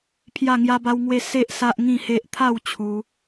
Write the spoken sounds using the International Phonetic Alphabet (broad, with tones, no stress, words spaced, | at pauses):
pʰja˥˧ŋja˦ba˦wŋwe˥˧ se˦ʔ sa˦ʔŋĩ˥˧he˦ʔ t̪ʰa˥˧w t͡ɕʰu˧